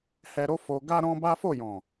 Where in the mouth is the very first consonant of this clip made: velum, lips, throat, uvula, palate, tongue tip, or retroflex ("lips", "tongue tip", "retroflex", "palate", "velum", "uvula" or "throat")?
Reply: throat